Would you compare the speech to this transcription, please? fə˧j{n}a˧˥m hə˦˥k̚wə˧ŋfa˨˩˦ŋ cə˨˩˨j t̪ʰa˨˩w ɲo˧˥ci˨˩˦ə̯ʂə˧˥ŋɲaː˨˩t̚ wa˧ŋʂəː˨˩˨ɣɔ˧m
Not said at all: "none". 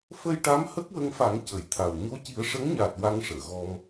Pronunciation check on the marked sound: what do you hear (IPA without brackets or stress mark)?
ʈ